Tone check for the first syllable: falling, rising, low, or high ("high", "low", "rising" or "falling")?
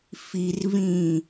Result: low